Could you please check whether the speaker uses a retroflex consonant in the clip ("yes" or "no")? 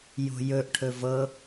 yes